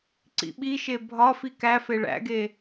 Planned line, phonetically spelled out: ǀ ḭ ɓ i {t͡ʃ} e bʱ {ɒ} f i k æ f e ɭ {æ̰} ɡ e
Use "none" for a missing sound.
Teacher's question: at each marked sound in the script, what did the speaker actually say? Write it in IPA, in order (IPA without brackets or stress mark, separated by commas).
ʃ, ɒ, æ̰